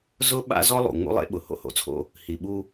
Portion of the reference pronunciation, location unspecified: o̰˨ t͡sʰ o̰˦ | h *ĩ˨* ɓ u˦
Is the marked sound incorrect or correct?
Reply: incorrect